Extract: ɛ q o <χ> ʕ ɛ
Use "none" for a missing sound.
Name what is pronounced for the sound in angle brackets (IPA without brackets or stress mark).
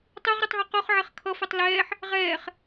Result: χ